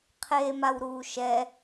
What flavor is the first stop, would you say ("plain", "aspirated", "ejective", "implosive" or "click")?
aspirated